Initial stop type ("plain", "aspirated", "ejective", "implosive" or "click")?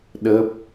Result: implosive